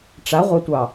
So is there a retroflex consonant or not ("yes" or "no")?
yes